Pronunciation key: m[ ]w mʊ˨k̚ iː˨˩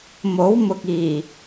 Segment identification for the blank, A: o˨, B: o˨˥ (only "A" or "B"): B